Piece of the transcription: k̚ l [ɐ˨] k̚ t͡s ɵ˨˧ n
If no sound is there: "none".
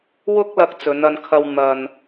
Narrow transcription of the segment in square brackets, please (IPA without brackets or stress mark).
ɐ˧